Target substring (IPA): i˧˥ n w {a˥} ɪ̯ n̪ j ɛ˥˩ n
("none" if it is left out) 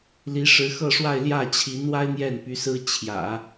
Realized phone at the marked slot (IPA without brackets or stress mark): a˥